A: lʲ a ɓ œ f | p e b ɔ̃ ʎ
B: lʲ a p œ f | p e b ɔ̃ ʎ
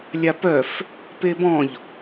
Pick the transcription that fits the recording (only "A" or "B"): B